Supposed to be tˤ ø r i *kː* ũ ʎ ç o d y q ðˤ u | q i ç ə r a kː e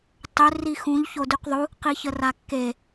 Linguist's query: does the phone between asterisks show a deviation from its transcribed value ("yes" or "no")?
yes